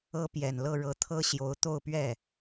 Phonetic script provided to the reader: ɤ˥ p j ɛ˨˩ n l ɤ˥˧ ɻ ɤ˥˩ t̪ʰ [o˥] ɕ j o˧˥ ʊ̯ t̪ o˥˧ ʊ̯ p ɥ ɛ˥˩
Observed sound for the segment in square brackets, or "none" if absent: ɤ˥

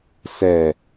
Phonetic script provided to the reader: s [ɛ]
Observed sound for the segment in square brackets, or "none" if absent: ɛ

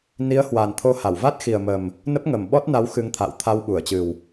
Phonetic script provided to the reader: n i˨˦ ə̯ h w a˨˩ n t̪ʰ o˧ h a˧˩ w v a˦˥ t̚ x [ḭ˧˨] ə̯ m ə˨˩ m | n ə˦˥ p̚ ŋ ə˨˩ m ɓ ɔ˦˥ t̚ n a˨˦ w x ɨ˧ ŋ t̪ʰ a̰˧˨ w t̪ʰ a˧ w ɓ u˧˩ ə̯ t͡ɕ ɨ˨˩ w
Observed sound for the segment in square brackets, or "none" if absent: i˨˩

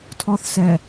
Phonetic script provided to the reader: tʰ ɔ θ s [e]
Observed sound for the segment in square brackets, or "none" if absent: ɛ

